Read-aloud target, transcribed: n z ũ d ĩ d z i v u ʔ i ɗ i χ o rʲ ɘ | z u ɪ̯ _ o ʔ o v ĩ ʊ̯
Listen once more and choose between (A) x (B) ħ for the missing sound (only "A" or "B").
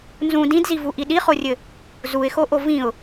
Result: A